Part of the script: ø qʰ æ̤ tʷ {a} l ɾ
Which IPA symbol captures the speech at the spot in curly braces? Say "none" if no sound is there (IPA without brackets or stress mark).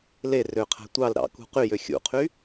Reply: ɑ